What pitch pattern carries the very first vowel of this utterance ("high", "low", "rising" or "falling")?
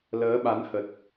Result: rising